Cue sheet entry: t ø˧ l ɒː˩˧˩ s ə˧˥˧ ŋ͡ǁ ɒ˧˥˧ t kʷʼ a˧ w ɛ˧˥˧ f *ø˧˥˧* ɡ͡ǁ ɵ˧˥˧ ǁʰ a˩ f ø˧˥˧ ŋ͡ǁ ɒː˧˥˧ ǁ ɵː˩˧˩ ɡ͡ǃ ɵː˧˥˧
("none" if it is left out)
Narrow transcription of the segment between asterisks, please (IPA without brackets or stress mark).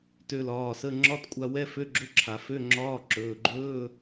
ø˧˥˧